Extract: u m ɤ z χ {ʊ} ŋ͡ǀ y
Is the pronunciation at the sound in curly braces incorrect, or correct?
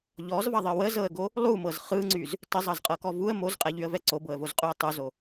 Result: incorrect